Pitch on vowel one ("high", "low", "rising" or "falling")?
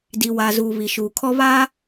low